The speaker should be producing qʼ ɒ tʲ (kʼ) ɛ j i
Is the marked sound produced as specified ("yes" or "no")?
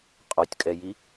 yes